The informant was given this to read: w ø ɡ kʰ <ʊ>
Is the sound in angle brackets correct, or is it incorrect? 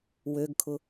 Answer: correct